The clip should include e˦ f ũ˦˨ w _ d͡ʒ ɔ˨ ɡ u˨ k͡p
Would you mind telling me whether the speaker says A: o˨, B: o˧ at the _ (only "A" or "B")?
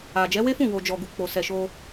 A